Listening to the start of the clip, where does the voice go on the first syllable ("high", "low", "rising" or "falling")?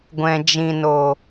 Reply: low